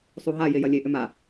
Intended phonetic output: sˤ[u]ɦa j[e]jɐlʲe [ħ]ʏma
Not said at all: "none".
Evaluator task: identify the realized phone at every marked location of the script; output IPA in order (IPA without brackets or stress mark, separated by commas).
u, e, ʔ